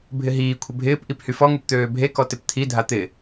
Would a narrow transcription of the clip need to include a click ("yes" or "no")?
no